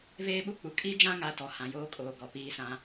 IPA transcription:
v eː˦ ɓ u˦ k͡p u˨ kʼ i˦ d͡ʒ ã˦ ŋ a˦ t ɔ˨ h ã˨ j oː˦ kʼ oː˨ ɡ ɔ˨ p iː˦ s ã˦

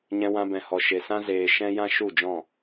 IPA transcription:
ɲ ɛ̃˧ w ã˧ b ɛ̃˨ h ɔ˨ ʃ e˨ s ã˦ z eː˨ ʃ ɛ̃˦ j ã˦ ʃ u˦˨ d͡ʒ ɔ̃˦˨

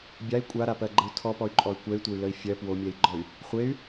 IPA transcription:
bʲ a i̯ kʷʼ a ɾ a p ɜ ɡ͡ǃ ə u̯ tʰ ɔ p ɔ y̯ ǃʼ ɔ y̯ kʷ ɛ y̯ tʷ ə y̯ l ə i̯ fʲ ɜ p w o mʲ ɛ i̯ ɡ͡ǃ ɔ y̯ | χʷ e y̯

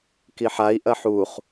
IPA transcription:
k i ħ a i̯ ʔ ɐ ħ u χ

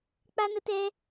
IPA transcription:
k͡p a˦ n ə˦ t ɛ˦

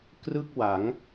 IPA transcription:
k r ɯ˥˩ k̚ w a˩˦ ŋ

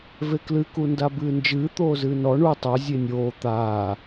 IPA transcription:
v e k l ɨ k u n d a b ɨː n d͡ʒ ɨː t̪ oː z ɨː n ɔ ɳ u tˤ o zʲ e nʲ oː t̪ aː

